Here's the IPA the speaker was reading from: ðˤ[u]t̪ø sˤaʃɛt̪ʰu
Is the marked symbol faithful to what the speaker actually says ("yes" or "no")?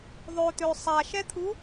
no